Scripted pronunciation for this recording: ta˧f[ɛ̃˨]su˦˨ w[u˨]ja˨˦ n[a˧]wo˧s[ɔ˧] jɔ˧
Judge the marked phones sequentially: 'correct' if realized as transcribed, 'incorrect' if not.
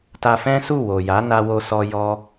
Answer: incorrect, incorrect, correct, correct

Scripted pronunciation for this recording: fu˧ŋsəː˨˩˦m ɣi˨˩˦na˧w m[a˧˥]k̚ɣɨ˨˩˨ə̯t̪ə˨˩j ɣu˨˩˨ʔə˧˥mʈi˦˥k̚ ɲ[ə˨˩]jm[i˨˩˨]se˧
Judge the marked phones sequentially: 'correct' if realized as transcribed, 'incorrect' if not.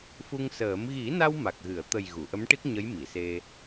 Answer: incorrect, incorrect, correct

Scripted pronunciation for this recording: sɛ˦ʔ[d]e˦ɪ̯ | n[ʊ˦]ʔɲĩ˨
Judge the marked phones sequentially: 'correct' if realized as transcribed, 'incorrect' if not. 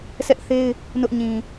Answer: incorrect, correct

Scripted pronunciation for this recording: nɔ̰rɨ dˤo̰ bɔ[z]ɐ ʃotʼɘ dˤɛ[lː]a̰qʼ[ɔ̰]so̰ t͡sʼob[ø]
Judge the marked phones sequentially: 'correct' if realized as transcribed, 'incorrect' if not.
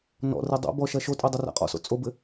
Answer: incorrect, incorrect, correct, incorrect

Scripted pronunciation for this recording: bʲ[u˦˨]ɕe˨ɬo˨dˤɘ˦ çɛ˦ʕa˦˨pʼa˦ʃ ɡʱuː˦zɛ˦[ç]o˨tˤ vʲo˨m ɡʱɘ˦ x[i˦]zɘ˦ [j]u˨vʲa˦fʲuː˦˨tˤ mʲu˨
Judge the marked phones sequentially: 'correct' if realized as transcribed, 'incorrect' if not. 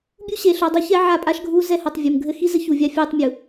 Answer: incorrect, incorrect, correct, incorrect

